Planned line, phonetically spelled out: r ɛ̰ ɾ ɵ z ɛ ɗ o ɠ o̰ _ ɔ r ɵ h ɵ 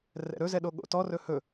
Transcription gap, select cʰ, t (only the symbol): t